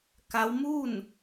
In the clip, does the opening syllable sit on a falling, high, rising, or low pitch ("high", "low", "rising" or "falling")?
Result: rising